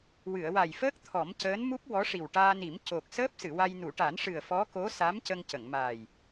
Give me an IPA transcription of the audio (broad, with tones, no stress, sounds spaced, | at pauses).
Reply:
w ɨ˨˩˨ ə̯ w a˨˩ j f əː˦˥ k̚ t̪ʰ ɔ˨˩˦ m c əː˧˥ n m u˦˥ p̚ w ɔ˧˥ ʂ i˨˩ w ʈ aː˧ n i˨˩˦ m c o˨˩ k̚ s əː˦˥ p̚ s ɨ˨˩˨ w a˧ j n u˨˩˨ ʈ a˨˩˦ n ʂ ɨ˨˩ ə̯ f ɔ˧˥ k o˧˥ s a˧˥ m c ə˧ ŋ c ə˨˩˨ ŋ m aː˨˩ j